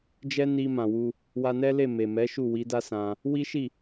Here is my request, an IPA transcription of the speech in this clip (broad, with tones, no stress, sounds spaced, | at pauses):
d͡ʒ ɛ˦ n i˧ m ã˨ w u˧ | w a˧ n ɛ˦ l e˦˨ m e˨ m ɛ˨˦ ʃ u˦˨ w i˨˦ d a˦ s ã˧ | w i˦ ʃ i˦˨